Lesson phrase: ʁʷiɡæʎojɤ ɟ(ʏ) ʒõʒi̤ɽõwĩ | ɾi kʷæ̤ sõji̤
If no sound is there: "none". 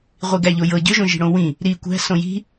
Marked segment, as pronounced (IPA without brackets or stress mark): ʏ